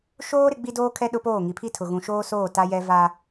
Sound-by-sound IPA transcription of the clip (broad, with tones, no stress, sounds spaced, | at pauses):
ʃ oː˦ ɾ ɪ˦ ɡ͡b i˦ d oː˦ kʰ ɛ˦ ɗ ʊ˦ p oː˦˨ ŋ i˨ pʰ i˦ tʰ ʊ˨ ɣ ũ˨ ʃ oː˦ s oː˦˨ t a˦ j ɛ˦ v a˦